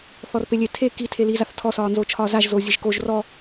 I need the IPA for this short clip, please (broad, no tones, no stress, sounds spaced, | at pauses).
θ ɔ r p e lʲ e tʰ e k i tʰ e l i z a θ tʰ ɔ s ɒː n z o t͡ʃʰ ɒː z a ʒ z oː zʲ e ʒ k o ʒ r ɔ